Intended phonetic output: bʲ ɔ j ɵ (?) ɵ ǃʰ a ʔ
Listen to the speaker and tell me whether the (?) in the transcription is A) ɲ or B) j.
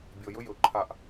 B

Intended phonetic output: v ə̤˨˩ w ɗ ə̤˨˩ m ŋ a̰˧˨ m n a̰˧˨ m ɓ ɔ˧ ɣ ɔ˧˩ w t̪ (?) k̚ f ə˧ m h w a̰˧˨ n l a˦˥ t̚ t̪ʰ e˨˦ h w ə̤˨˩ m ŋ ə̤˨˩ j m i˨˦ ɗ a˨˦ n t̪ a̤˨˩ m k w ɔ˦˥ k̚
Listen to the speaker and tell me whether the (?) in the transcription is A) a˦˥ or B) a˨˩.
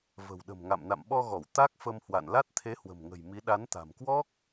A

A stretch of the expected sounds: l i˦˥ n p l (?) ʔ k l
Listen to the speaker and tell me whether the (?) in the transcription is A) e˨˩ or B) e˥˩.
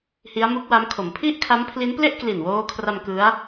B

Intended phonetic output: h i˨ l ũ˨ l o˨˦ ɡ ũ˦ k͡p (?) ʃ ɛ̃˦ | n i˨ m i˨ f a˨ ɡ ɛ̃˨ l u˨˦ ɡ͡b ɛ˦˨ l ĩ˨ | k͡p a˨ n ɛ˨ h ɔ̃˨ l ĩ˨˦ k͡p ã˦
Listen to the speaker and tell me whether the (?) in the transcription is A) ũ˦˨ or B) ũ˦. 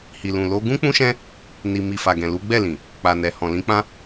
B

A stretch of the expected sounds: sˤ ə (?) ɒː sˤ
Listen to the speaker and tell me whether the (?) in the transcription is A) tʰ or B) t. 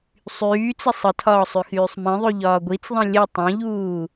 A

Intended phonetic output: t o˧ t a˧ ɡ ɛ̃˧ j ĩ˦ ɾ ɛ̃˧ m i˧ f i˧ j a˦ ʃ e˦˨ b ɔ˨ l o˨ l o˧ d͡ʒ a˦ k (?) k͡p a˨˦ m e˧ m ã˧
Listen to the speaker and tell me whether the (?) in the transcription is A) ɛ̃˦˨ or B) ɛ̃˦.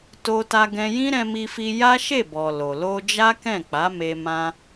A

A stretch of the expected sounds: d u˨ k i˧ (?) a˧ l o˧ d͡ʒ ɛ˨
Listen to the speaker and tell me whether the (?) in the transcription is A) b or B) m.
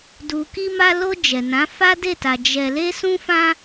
B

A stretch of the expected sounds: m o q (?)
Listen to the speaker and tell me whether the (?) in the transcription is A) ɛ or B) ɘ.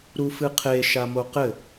B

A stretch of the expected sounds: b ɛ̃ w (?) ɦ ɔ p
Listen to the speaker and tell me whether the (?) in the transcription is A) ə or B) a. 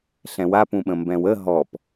A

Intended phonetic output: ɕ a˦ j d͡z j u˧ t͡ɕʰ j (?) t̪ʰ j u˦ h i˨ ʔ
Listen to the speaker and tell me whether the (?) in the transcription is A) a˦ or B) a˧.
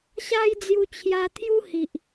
B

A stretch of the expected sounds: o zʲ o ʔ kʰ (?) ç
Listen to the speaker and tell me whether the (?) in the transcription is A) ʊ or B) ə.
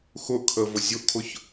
A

